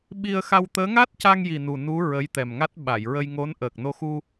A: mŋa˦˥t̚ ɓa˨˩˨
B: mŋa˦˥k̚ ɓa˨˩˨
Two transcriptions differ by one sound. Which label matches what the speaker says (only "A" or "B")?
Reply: A